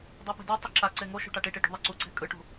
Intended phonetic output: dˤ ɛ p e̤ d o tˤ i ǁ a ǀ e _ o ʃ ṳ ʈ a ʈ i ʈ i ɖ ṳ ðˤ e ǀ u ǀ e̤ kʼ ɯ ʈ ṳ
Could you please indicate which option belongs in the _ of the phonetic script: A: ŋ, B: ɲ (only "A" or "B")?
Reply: A